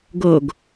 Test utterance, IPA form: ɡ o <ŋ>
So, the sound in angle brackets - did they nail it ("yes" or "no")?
no